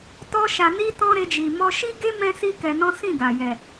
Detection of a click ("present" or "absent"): absent